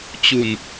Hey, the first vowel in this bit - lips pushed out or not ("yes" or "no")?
yes